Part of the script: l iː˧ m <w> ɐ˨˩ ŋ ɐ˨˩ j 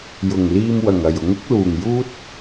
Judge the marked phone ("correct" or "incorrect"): correct